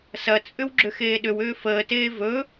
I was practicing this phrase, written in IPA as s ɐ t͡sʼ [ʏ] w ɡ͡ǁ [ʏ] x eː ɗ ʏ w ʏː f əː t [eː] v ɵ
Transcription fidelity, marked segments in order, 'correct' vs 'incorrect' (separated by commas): correct, correct, correct